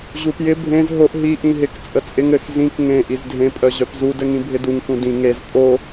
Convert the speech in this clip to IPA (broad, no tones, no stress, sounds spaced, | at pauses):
ʑ u p j ɪ bʱ ẽ z ɦ o ʔ ɦ i ʔ ĩ ɦ ɪ k t͡sʼ ə t͡sʼ ɪ ŋ ɘ x z ĩ k ŋ ẽ ʔ i z dʱ ẽ pʼ œ ʑ œ p z u d ɘ ŋ ĩ bʱ ɪ d u ŋ k ũ d ĩ ŋ e z pʼ o